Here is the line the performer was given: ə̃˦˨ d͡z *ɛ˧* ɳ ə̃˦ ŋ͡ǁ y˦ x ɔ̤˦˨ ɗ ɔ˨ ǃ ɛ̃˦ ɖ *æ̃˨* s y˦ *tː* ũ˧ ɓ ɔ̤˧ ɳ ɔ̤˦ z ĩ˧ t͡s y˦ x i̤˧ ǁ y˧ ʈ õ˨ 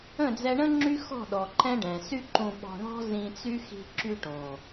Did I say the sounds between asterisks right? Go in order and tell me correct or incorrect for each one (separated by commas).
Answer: correct, incorrect, incorrect